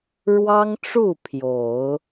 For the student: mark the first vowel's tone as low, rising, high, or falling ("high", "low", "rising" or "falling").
high